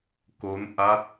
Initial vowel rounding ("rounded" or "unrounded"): rounded